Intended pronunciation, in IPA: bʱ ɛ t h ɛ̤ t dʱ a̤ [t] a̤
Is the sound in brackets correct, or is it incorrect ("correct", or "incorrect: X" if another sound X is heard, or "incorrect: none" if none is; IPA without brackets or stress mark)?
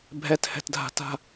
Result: correct